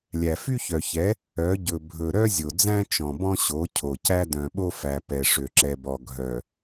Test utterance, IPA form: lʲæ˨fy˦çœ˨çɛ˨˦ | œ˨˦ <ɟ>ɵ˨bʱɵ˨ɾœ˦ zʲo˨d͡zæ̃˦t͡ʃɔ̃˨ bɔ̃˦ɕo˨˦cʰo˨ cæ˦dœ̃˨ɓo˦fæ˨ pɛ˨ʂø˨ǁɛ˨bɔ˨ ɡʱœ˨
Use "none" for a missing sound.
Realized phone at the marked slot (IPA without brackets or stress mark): ɟ